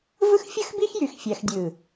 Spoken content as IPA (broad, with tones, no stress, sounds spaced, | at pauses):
v ɯ˦ x fʲ ɯ˦ x b i˦ x j y˧ x fʲ æ˧ x dʲ ɯ˨